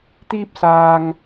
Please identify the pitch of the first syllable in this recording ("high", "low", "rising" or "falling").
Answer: high